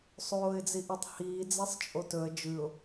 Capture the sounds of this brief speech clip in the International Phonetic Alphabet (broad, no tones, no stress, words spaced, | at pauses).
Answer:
sˤoːɪ̯d͡ziʔɵtˤhiː d͡zesˤt͡ʃʼotɵə̯ d͡ʒʉʊ̯